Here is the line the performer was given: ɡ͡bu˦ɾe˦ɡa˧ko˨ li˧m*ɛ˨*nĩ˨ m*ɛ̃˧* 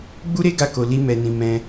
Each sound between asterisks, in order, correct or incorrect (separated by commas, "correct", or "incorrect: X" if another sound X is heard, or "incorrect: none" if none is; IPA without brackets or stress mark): correct, correct